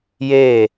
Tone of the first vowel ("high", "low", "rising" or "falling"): falling